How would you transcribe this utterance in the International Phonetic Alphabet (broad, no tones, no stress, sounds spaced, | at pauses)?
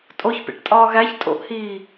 tʼ o ç p ḛ ʈ tʼ ɒː ɣ æ ç tʼ o̰ ʔ h iː